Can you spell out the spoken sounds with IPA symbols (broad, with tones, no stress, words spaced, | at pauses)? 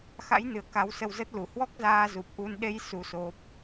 xa̰˧˥jnɨ˧˩ə̯ ka˨˦wsə˧wzə˦˥t̚lu˧˩ hwɔ˦˥k̚zaː˧ zu˨˩p̚ʔu˧n ɗe˧j su˧so˦˥p̚